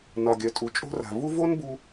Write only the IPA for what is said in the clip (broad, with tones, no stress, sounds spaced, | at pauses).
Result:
n ɒ˨ ɡʲ œ˨ tʼ u˨ t͡ʃʼ o̤˦ r a̤˨ v u˦ v o˦ n b u˧